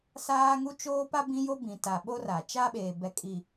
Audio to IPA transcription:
saː˦ŋu˦ t͡ʃoː˦pa˦ bĩ˦jo˦ bĩ˨ta˨ɓo˦ ra˨ t͡ʃa˦ɓeː˨bɛ˨ kʼi˨

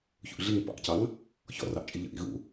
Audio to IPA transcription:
çṵʔɮiŋ pɑ̰ʔcɑŋ | çɔ̰rɑʔ t͡ʃʼiʎə̰ʔḭ ɣṵ

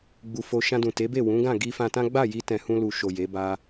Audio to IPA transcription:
ɡ͡bu˧fo˧ ʃã˧dũ˨te˨˦be˦˨ wũ˨˦ɡã˦˨ ɡi˧fã˧tã˦ ɡ͡ba˦˨ji˧ tɛ̃˨hũ˧lu˨ ʃo˨ je˨˦ba˦

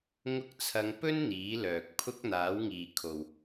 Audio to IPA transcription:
ŋʊ˧k̚t͡sʰɐ˨˧ŋpɵ˥n n̪iː˨˥lœː˨k̚pʰʊ˥k̚ n̪aː˨˥wŋiː˨kʰo˨w

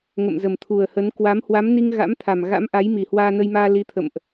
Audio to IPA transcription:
ŋə̰˧˨mzə˨˩mt̪ʰu˨˩ə̯hə˨˦n kwa˨˦m hwa˨˦mni˧ŋ ɣa̰˧˥mt̪ʰa˨˩m ɣa̰˧˥mʔa˨˦j mi˨˩hwaː˧nə˧jmaː˧ li˨˦t̪ʰə̰˧˨mʔ

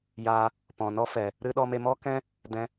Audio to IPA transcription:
ja˧ | pɔ̃˨nɔ˦fɛ˨ | ɾɨ˦ ɗɔ˧me˧mɔ˦kɛ̃˦ | dɛ̃˧

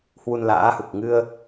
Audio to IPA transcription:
hwu˧nla̰ː˧˥hu˨˩k̚ ŋɨ˧ə̯

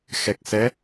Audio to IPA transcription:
xɛ˨˩k̚sɛ˨˦

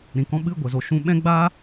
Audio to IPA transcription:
ɾĩ˨kɔ̃˧ ɓɨ˦˨ ɡʷə˨zo˨ ʃũ˧ɓɛ̃˦ɡ͡ba˦

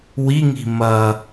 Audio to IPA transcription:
wiŋi̤ mɐ

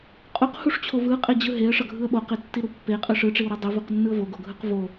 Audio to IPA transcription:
qʼuqhuʂt͡ɕʰo vɯqʼed͡ʑɯ ɦeə̯ʂʌɡʱɯə̯ ɓoqetːiɾu pːeqʼɯ ʂɯʈ͡ʂiwɾɯ dˤivuqnːɯə̯ voɡoɡʱɯq vo

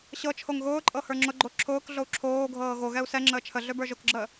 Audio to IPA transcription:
ɕɤ t͡ʃʰoŋɣʊːǃʼɤ hə˞ŋ͡ǁʊɡ͡ǃo ǁʰʊːkɮou̯ ǁʰoːɡʱɤː ɣo ɣɛu̯sɛŋ͡ǁəː t͡ʃʰəɮø bə˞ʒʊkɡ͡ǁəː

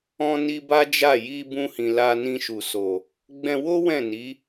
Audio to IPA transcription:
ɔ̃˦ni˦ba˦d͡ʒa˦˨ ji˧ bũ˦hĩ˧ la˧nĩ˧ʃu˨so˨ | ɡ͡bɛ̃˧wo˦ wɛ̃˦˨ni˨˦

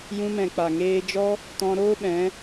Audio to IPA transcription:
jũ˧mɛ̃˨k͡pa˨ŋeː˧ d͡ʒɔ˦ | tɔ̃˧ɾoː˦ɓɛ̃˨˦

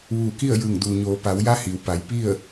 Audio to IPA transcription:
ʋuː˧˩ ki˥˨ə̯jɯː˧˩ŋduː˩ ɲoː˩˧ pa˩˧wja˧˥ hi˩˧w pa˩˧j pi˥˨ə̯

